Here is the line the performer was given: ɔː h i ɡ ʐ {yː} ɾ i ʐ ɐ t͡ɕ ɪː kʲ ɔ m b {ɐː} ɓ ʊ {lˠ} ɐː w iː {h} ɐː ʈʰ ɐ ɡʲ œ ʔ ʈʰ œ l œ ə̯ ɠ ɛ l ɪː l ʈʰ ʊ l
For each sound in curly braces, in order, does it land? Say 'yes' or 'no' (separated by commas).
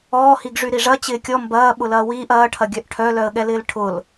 no, yes, no, no